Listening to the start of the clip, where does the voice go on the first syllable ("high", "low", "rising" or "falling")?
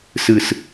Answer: low